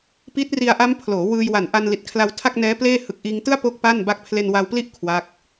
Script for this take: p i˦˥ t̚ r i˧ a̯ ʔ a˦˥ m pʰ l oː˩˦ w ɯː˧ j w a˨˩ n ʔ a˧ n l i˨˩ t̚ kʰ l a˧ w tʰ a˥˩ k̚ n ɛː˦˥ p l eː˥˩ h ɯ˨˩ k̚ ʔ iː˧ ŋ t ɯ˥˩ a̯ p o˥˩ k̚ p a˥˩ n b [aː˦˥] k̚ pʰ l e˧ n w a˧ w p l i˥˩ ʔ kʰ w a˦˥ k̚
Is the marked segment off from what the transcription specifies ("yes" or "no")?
yes